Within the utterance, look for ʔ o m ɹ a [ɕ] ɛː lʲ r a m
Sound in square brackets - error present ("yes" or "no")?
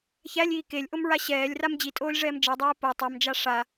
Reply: no